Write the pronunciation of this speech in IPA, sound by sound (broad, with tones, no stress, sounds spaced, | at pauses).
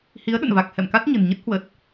h i˨˦ ə̯ ɗ ə̰˧˨ n v a˨˩ k̚ h ɛ̰˧˨ m k a˦˥ t̚ ɲ ə̤˨˩ n ɲ ə˦˥ t̚ h w ə˨˩ t̚